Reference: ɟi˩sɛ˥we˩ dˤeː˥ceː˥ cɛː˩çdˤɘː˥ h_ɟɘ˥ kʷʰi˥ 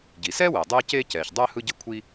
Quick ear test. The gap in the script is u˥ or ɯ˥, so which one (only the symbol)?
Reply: ɯ˥